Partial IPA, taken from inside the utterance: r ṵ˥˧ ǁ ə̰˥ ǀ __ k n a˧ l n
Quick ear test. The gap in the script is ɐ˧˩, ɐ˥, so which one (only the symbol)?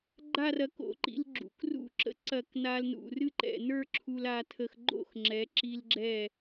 ɐ˧˩